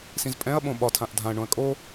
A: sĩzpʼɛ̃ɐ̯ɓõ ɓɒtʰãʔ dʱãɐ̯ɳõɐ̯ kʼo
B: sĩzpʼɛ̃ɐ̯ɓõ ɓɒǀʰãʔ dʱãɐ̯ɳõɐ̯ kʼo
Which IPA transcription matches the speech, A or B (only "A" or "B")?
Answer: A